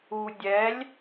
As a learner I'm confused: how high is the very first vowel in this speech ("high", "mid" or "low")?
high